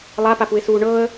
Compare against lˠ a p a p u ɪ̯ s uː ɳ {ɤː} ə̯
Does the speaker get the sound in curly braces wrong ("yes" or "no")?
no